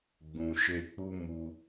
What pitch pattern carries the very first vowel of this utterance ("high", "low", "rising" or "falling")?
low